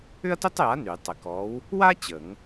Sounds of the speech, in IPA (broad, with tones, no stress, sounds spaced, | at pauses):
ʏ˥ ɐ̯ t ʏ˥ tˤ j a˨˥ n y˨˩˦ tˤ ɪ˨˩˦ k ɔ˨˥ w | w a˥ t͡ɕ ə˨˩˦ ŋ